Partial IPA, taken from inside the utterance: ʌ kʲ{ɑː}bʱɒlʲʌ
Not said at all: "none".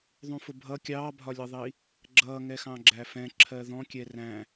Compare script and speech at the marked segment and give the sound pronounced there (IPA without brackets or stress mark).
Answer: ɑː